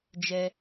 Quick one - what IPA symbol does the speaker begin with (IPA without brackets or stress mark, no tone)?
d͡ʒ